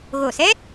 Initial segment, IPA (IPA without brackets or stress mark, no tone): ɣ